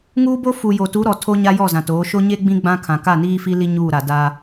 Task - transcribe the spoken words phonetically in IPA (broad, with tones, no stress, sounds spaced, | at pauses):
ŋ uː˦ b o˦ f u˨ j o˨ t u˨˦ ɾ ɔ˨ tʰ o˦ ɲ a˦ j ɔ˦˨ z ã˨ t oː˨˦ ʃ o˦ ɲ e˦ ɡ͡b ĩ˦ ɡ͡b ã˦ kʰ ã˨ k a˦˨ n iː˦ f i˦ l i˦ ɲ uː˦˨ ɾ a˨ d a˦